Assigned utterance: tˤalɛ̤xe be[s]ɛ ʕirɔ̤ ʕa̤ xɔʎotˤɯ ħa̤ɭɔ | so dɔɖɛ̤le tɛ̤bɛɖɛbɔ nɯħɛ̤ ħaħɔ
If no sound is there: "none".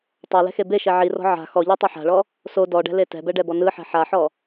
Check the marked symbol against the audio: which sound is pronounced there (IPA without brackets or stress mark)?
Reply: ʃ